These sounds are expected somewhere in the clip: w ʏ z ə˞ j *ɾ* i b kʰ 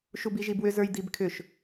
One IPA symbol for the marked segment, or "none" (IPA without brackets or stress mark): d̪